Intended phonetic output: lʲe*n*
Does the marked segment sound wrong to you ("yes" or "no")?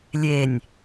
yes